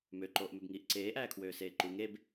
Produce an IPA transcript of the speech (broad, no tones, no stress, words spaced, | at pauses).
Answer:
møǃoːʔmøbŋiːʔ ǀeːʔæːkʰwøːseː ǃuŋ eb